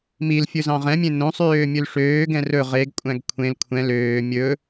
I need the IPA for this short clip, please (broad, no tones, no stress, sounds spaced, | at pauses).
m i l fʲ ɵ z ɑ̃ ʁ ɛ̃ mʲ ẽ n õ sˤ øː mʲ ɵ l ʂ øː ɡ ɛ̃ r ɵ ʁ e ɡ kʷʼ æ̃ ɡ kʷʰ ẽ l kʷʰ ɛ̃ l øː mʲ ɵ